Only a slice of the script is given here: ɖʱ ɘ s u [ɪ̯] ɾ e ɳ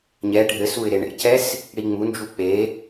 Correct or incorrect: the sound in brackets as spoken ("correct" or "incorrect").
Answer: correct